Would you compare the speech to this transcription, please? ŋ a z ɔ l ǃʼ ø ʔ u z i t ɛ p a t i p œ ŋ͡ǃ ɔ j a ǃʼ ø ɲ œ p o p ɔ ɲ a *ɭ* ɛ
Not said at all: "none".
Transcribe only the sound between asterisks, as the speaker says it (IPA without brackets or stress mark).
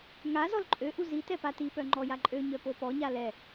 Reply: l